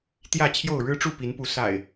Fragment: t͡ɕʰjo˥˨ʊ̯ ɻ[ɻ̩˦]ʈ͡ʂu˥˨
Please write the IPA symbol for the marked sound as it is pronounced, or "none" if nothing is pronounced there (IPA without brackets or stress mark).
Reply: ɻ̩˦